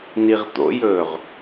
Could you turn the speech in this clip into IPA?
n i ʁ t̪ o̰ j ɵː ʁ

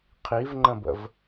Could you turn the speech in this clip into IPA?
qʰ i v ŋ͡ǃ ə̃ b ə̰ v

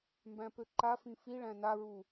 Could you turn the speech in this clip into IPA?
m b æ̃ p ø ǃ a f ĩ f i ɭ æ̃ n a ɹ u

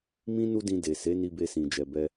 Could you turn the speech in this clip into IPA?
m ĩ˦ n u˦ d ĩ˧ d e˨ s e˨˦ n i˧ b e˧ s ĩ˨ d͡ʒ ɛ˨ b ɛ˧

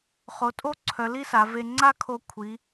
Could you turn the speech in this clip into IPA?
χ o˩˧ tʼ o˥ ǀʰ œ˩˧ l i˥ s a˩˧ v e˧ ŋ͡ǀ a˥ kʰ o˧ kʷʰ i˩˧

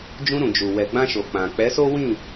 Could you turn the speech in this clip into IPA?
d͡ʒ ũ˧ ɾ ũ˨ d͡ʒ u˨ w ɛ˨ ɡ͡b ã˧ ʃ o˨ k͡p ã˨ k͡p ɛ˨˦ s o˦ w ĩ˦˨

